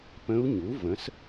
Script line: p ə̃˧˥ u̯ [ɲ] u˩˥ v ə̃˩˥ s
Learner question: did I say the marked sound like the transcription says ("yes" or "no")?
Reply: yes